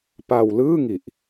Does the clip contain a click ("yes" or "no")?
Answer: no